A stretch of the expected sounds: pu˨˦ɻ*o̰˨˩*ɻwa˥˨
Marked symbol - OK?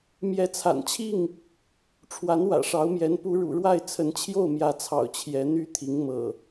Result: no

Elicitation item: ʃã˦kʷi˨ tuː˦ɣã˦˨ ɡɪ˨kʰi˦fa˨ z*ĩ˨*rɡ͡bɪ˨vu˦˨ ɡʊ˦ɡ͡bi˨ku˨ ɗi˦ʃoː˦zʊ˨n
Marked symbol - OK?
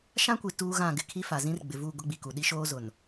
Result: no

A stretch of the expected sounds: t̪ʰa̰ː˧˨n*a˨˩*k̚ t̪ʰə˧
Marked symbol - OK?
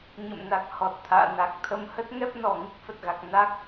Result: yes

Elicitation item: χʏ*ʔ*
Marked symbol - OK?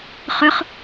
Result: no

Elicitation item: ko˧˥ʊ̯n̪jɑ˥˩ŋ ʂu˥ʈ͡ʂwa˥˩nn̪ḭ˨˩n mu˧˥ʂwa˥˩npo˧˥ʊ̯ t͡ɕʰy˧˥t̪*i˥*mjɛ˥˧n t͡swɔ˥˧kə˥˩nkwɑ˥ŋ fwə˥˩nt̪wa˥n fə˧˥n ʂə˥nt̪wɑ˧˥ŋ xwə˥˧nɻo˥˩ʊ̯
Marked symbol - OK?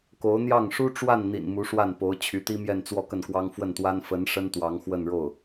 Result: yes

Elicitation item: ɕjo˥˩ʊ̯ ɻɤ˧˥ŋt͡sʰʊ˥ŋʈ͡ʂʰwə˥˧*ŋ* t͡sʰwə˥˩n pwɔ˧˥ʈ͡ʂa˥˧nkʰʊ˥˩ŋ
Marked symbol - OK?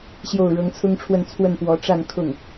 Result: no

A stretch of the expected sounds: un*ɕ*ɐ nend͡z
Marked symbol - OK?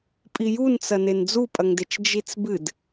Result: no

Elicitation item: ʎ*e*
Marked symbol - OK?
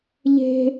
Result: no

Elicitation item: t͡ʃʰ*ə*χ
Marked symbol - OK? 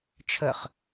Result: yes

